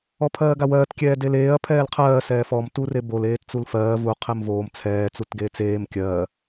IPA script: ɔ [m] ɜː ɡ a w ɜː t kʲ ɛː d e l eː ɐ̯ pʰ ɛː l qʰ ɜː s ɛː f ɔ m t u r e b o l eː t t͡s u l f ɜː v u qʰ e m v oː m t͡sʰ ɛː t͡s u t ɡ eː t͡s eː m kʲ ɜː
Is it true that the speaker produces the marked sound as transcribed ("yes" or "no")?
no